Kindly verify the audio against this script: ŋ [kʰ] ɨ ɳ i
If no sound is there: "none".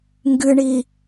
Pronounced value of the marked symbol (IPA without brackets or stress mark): ɡ